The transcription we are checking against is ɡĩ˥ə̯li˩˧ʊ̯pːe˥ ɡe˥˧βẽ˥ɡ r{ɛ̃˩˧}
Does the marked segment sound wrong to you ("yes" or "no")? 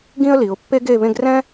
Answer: yes